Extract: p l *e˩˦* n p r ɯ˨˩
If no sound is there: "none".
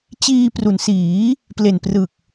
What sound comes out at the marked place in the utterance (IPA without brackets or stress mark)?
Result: e˨˩